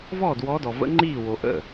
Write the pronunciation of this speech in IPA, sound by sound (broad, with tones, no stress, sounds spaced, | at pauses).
v ɔː˥˩ d w ɔ˧˥ d ɔ˨ v ə̰˧˥ ŋ͡ǃ iː˥˩ w o˨ ʔ ə̰˥˩